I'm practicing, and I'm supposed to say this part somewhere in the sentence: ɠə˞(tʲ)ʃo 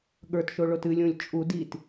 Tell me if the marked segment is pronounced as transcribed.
no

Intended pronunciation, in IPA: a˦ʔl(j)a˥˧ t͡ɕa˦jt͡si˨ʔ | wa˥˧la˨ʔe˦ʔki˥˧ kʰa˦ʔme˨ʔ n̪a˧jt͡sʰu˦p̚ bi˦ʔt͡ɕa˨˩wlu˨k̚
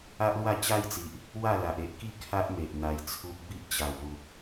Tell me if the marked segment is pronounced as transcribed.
no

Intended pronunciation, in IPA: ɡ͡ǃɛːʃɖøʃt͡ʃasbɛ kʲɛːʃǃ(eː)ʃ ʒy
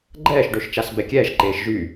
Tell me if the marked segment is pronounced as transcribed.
yes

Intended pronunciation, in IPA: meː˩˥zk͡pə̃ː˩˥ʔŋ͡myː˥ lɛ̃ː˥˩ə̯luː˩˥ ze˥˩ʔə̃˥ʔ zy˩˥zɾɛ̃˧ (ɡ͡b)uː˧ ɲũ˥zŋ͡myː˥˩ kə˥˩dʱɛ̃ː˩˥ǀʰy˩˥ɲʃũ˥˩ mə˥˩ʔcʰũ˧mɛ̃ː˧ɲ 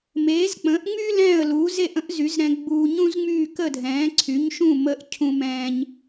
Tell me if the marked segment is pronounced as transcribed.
yes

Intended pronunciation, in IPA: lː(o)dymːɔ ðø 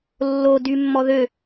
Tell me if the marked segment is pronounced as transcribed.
yes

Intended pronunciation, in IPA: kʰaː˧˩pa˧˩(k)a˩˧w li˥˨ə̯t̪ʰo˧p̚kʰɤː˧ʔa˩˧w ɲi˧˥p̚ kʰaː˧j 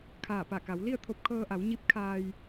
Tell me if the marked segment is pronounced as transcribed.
yes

